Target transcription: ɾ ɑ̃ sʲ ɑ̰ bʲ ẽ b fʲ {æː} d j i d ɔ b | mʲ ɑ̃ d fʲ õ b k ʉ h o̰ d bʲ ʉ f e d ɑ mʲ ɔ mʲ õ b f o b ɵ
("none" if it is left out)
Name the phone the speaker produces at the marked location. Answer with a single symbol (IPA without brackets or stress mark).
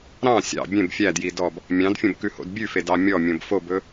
æ